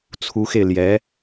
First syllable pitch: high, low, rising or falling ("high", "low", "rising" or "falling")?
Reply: rising